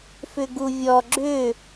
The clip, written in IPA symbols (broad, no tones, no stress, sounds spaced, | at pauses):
f ʏ ɡ u vʲ ɔ ɡ͡ǁ ʏ